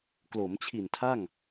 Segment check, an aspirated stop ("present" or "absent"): present